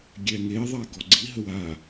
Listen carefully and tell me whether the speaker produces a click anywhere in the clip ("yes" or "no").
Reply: yes